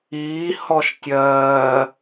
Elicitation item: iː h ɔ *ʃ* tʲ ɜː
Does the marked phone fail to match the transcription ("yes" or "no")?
no